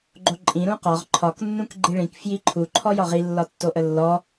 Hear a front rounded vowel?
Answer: no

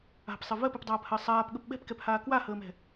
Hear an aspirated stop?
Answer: no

